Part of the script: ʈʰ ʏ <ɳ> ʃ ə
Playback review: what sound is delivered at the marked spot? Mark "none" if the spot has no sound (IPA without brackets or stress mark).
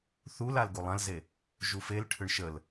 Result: ɳ